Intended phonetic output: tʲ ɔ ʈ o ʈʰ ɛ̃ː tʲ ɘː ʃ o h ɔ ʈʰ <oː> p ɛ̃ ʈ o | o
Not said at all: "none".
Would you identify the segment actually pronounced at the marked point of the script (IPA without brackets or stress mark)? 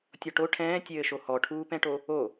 uː